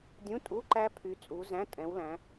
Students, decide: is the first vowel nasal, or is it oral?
nasal